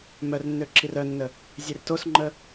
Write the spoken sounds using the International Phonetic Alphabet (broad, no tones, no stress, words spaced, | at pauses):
mœrnːø ǁirœnːə | zʲertosŋ͡ǃə